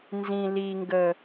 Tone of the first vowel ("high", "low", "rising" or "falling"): low